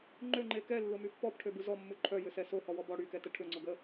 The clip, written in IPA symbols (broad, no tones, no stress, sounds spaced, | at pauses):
ŋ͡ǃ ø ŋ͡ǃ e k ɛ lː ʊ m y pː ɔ b ʈʰ ø b u z ɔ mː u ǃʰ œ j ʏ s ɛ s o h ɔ w ɔ b ɔ ɽ y k ɛ t ə ʈʰ ʏ ŋ͡ǀ ʊ ɡ ə